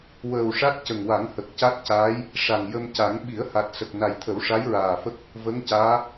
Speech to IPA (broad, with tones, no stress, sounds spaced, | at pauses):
w əː˨˩ w ʂ a˦˥ t̚ c ə˨˩ ŋ w a˨˩˦ ŋ h ə˨˩ k̚ c a˦˥ t̚ c aː˧˥ j | ʂ a˨˩ ŋ j ə˧ m c a˨˩˦ ŋ ɓ i˨˩˦ ə̯ h a˨˩ t̚ s ə˨˩ k̚ n a˨˩ j t̪ʰ ə˨˩˦ w ʂ a˧˥ j ɹ aː˨˩ f ə˦˥ k̚ | v ə˧˥ ŋ c aː˧˥